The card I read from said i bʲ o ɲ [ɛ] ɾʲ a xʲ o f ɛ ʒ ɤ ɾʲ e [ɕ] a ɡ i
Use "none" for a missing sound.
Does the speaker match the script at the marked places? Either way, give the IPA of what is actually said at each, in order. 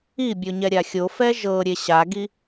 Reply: ɛ, ɕ

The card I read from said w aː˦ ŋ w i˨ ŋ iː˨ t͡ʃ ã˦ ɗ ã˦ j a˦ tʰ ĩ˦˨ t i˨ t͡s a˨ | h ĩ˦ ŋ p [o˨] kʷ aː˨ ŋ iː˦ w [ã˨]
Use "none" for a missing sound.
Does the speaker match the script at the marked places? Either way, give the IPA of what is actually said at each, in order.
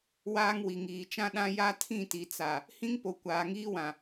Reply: o˨, ã˨

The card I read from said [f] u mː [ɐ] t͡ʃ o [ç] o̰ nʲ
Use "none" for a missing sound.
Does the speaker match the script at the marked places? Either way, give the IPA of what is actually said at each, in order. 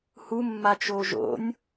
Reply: h, a, ʒ

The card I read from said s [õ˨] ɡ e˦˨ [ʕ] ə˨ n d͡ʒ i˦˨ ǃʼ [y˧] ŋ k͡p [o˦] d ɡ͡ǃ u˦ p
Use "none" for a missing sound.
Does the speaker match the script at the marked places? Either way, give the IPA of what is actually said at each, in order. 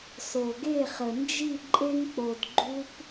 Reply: o˨, χ, e˧, o˨

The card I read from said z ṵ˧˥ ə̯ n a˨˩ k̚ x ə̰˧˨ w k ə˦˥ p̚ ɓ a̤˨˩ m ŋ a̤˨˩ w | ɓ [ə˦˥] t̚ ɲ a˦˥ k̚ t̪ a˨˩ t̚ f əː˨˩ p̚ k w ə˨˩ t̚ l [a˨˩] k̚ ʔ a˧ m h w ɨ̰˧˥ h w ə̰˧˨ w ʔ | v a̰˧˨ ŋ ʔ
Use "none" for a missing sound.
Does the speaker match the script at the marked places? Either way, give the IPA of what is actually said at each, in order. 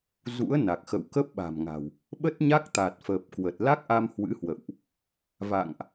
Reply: ə˦˥, a˦˥

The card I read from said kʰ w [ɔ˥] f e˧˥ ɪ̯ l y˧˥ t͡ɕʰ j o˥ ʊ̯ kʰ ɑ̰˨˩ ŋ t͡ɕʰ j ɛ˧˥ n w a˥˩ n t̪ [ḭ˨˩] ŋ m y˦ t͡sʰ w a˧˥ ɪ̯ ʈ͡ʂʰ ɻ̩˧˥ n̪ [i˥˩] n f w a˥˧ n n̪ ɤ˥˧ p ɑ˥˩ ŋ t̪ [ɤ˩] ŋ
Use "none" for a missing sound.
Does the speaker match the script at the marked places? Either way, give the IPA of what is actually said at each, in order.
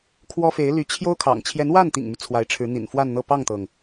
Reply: ɔ˥, ḭ˨˩, ḭ˨˩, ɤ˩

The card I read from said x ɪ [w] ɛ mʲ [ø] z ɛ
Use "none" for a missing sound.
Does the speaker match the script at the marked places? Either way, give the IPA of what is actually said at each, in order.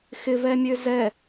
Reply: v, ø

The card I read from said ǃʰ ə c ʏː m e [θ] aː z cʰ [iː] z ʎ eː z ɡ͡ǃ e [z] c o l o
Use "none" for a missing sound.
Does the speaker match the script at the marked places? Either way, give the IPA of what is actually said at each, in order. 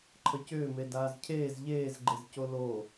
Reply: d, eː, z

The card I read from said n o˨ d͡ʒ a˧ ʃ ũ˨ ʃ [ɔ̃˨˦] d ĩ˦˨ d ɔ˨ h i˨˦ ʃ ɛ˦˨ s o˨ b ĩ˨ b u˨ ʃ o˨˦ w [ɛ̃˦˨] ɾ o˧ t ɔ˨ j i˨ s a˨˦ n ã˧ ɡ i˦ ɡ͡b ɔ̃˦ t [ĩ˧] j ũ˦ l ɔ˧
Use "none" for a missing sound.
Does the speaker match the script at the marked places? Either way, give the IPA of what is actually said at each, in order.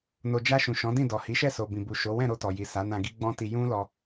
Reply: ɔ̃˨˦, ɛ̃˦˨, i˧

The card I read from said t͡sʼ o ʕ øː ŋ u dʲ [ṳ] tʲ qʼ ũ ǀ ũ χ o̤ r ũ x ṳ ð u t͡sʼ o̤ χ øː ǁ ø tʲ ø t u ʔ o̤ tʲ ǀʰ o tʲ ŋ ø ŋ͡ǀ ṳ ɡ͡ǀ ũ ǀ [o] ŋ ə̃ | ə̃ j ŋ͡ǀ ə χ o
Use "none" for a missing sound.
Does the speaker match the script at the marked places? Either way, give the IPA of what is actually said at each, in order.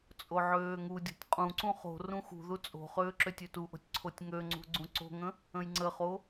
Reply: o̤, o̤

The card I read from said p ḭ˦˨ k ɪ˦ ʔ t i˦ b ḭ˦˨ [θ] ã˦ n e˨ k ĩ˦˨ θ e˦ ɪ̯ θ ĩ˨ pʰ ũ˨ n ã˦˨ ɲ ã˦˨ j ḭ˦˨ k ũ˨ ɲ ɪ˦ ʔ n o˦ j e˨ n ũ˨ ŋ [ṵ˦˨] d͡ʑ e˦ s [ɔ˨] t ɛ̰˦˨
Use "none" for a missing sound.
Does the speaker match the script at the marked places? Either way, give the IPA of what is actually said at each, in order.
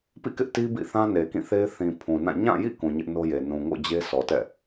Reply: θ, o̰˦˨, ɔ˨

